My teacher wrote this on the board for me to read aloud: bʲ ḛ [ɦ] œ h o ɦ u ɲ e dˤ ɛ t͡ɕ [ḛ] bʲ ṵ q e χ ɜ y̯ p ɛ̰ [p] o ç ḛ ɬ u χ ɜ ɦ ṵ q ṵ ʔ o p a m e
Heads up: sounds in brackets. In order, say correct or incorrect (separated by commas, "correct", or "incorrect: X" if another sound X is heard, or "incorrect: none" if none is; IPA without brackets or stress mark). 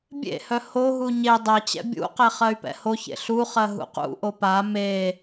incorrect: h, incorrect: ɛ̰, incorrect: h